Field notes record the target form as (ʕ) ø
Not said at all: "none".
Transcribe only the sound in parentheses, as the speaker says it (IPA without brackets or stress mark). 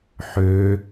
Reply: ħ